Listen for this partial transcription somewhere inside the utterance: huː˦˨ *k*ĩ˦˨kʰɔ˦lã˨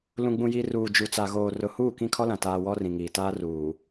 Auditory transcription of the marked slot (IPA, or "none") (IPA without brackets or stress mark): k